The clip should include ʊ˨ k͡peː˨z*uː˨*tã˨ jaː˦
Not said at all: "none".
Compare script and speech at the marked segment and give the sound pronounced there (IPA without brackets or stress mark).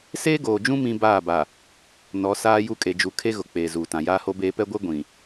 uː˨